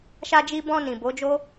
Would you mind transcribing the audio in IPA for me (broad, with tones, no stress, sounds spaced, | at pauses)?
ʃ a˧ d͡ʒ i˧ b ɔ̃˧ n ĩ˨ b o˨˦ d͡ʒ o˦